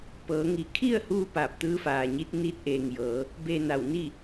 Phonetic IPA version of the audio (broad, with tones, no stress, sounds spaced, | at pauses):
p ɤː˩˧ ŋ i˧˩ kʰ i˥˨ ə̯ h uː˧ p aː˧˩ p̚ t̪ ɯː˧˥ f aː˩ ɲ i˧˥ t̚ n iː˧˥ t̚ ʔ eː˩ ŋ j ɤː˩˧ | b eː˧ n a˧˩ w n i˥˨